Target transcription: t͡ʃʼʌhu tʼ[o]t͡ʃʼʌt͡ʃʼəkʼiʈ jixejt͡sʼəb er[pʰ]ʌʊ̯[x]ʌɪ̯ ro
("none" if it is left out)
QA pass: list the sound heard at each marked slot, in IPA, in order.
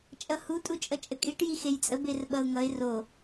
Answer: u, ɓ, ŋ

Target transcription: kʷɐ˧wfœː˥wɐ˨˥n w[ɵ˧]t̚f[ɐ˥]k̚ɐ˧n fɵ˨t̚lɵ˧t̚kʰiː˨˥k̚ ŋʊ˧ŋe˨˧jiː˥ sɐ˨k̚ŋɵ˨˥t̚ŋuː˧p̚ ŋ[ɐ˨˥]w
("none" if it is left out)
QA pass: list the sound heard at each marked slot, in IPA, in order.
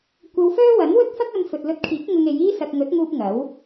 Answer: ɵ˥, ɐ˥, ɐ˨˥

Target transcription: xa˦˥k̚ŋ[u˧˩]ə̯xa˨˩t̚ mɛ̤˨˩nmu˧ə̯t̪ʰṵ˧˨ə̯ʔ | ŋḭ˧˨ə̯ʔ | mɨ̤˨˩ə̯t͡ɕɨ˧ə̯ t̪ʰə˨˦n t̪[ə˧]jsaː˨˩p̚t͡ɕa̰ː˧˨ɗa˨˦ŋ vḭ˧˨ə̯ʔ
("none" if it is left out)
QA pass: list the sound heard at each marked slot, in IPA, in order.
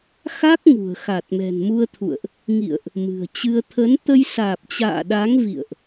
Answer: ṳ˨˩, ə˧

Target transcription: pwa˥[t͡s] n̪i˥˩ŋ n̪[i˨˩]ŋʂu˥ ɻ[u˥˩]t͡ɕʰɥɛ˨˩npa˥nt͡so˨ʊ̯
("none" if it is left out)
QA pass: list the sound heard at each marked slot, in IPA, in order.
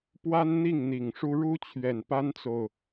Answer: n, i˨˩, u˥

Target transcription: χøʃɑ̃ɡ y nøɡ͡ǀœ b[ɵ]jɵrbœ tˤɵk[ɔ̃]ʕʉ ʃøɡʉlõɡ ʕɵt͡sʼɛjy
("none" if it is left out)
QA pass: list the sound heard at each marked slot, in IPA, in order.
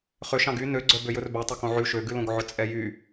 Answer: ø, õ

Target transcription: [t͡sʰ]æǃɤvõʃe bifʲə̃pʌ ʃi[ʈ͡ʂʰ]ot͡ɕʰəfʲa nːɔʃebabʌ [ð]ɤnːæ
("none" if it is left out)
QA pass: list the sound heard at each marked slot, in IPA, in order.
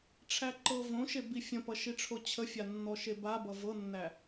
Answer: ʈ͡ʂʰ, ʈ͡ʂʰ, v

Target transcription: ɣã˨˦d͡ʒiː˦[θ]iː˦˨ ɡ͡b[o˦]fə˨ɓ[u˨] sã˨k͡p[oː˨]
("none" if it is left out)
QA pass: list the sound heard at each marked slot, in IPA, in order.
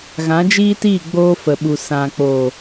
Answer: t, oː˦, u˨, oː˨

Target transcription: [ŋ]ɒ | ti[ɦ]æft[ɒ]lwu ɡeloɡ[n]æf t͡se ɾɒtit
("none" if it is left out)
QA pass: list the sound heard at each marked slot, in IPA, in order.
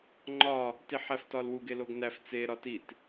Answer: ŋ͡ǃ, ħ, ɒ, n

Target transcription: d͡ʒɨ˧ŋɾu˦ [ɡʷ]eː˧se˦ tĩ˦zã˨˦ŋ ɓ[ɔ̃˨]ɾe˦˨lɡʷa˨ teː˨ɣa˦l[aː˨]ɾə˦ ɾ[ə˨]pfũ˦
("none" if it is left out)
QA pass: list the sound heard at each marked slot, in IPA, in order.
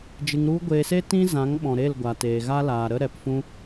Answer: ɡʷ, ɔ̃˨, aː˨, ɛ˨

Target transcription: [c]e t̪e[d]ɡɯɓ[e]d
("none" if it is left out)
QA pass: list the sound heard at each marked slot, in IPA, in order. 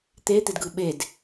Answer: t̪, d, e

